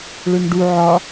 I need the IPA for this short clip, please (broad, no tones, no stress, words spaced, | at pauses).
ɭømɖu ʕɒ